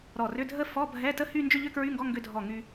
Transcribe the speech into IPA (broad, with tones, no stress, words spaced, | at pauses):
ɾɔ˧˩rʏ˧˥˧dʱə˥˧ fɔ˧˥˧bʱɛ˧˥˧ tə˥˧hy˥˧ nd͡ʒʏ˥˧ʎʏ˥˧kɹy˧˥˧ŋɡɔ˧˥˧ ŋɡʏ˧dʱɔ˧˩ ŋy˧